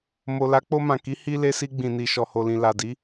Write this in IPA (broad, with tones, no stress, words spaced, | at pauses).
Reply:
mo˨la˨˦k͡po˧mã˨ ki˨˦ hi˧ le˧si˧ɡ͡bĩ˨ni˨ ʃɔ˨ho˨lĩ˨ la˨di˨˦